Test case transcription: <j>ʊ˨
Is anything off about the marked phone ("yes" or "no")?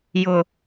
no